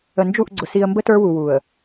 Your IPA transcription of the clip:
ə˨nd͡ʒu˦˨ʔɡ͡ǀʊ˨ si˨ə̯mbə˦ tə˞˦wu˨wu˨ə̯

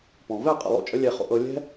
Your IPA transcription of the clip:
pɔ̃˨vɛ˦˨ qʼə̰˦˨lˠo̰˦t͡ʃʼə˦ lʲɛ˧χo̰˧ʔɤ˧ lʲɛ̤˦

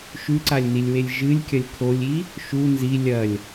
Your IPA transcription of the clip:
ʃʉǀalʲnilʲwelʲ ʒɨlʲkʲɐlʲ kʰolʲi | ʃu nzi lʲɐlʲ

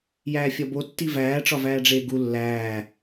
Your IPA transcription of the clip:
jæːfʲɒbo tːivæː ʈ͡ʂɒvæːɖ͡ʐeːɡu lːæː

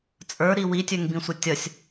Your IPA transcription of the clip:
t͡sʼə˞ɾi witʲɵŋbĩsʷʌ tʲʌsʲ

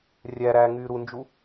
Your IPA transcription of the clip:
rʲæɾæː ŋyːɾund͡ʒu

